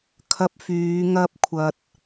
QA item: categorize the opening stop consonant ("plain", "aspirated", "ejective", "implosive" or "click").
aspirated